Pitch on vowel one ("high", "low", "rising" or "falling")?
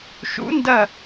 rising